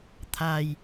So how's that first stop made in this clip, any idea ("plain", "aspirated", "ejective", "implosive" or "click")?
aspirated